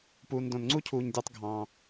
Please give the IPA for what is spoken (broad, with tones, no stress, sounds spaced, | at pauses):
p uː˩ n d õ˩ n ŋ͡ǀ u˥ cʰ uː˩ ɲ dʲ ɑ˧ tˤ ɡʱ ɑ̃ː˩